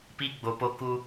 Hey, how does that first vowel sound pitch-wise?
high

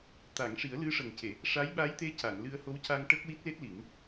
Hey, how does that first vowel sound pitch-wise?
low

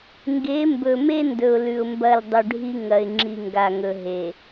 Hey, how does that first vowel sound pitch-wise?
rising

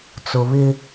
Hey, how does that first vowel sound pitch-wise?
low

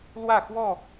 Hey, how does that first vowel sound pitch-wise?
falling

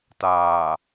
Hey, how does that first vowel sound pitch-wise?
low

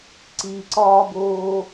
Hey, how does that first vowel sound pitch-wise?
low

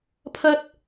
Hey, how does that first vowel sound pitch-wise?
high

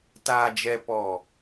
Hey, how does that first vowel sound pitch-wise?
low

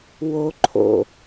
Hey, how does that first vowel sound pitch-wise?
high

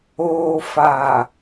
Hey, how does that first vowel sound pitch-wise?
low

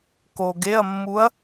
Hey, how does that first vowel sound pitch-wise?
low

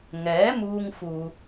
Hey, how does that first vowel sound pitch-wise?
rising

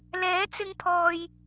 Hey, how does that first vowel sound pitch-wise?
rising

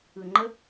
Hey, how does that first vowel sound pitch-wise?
low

